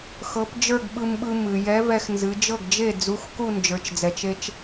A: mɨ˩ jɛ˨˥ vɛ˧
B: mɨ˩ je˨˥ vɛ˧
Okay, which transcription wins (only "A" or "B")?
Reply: A